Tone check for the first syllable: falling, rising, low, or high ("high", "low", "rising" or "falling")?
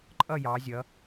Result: falling